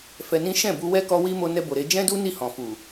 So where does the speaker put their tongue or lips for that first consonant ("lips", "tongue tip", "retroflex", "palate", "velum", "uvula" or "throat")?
lips